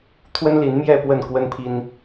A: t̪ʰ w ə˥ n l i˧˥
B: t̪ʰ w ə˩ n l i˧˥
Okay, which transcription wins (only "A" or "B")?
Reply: A